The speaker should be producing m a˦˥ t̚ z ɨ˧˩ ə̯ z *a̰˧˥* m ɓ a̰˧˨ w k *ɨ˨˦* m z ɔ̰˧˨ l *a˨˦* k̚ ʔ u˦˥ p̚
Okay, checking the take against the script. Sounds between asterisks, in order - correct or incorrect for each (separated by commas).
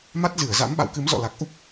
correct, correct, incorrect